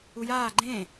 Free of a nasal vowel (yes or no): no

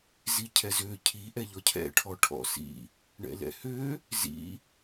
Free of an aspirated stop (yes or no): no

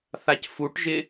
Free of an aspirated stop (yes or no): yes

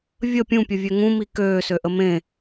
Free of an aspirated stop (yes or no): yes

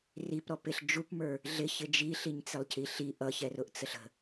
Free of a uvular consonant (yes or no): yes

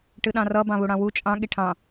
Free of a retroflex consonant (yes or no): no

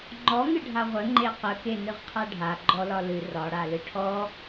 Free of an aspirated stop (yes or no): no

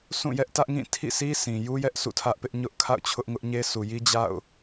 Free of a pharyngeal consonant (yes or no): yes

